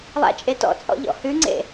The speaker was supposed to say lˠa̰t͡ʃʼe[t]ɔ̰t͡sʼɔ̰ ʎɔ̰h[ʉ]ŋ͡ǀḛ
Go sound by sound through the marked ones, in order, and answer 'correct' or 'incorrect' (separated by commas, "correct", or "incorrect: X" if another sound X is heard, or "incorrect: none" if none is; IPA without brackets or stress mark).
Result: correct, correct